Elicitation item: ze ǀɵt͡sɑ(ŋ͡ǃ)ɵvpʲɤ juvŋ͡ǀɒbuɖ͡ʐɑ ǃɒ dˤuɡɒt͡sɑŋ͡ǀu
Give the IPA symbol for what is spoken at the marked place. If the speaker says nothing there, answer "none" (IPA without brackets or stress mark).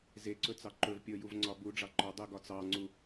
ǃ